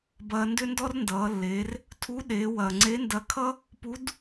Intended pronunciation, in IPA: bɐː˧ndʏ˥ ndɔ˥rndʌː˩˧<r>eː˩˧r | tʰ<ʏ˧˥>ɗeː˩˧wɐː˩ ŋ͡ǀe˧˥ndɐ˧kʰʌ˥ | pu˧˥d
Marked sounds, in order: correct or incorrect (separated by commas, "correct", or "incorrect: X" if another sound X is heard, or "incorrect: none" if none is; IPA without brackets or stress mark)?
incorrect: lː, incorrect: u˧˥